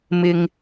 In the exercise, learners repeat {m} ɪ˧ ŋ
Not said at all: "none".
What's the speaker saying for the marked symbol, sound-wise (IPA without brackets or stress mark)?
m